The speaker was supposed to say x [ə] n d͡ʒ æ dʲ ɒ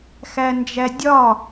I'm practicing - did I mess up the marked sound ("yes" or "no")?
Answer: yes